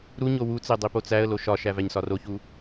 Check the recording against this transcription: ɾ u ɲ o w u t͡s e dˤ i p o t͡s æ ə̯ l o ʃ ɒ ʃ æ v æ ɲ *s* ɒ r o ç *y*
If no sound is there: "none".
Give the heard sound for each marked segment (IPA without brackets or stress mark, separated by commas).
s, u